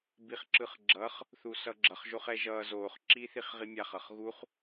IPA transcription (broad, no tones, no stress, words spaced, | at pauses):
biχǁɯχɡ͡ǁʌχ | θusʌɡ͡ǁʌχ ʒoχɛʒʌː zoːχ ǁiːθiχʁimʲaχ ʌχɣuχ